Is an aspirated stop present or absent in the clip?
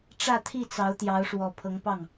present